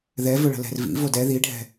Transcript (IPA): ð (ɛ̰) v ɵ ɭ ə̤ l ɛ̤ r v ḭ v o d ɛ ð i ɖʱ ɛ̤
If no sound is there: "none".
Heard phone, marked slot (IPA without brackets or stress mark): ɛ